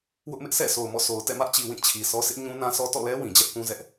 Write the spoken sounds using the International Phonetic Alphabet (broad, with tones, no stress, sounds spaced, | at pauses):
w ʊ˦ ʔ m ɪ˦ ʔ sʰ ɛ̰˦˨ s o˨ ʊ̯ m ɔ̰˦˨ sʰ o˨ ʊ̯ t ɛ̰˦˨ m ä˦ ʔ t͡ɕ i˨ w ĩ˦˨ t͡ɕʰ i˨ sʰ ɔ˦ s ɪ˦ ʔ ɲ ũ˦ n ã˦ s ɔ˦ t ɔ̰˦˨ l ɛ˦ w ĩ˨ d͡ʑ ɛ˦ ʔ k ũ˦ z ɛ˦ ʔ